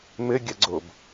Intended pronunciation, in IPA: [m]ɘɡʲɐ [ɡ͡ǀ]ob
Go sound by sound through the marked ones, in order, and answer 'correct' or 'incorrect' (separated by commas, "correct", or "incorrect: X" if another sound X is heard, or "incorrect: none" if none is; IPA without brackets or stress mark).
correct, correct